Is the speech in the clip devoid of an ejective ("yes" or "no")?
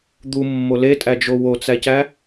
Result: no